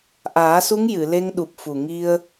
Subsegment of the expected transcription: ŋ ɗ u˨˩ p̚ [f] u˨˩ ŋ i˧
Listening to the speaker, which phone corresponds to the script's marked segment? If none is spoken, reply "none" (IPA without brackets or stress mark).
f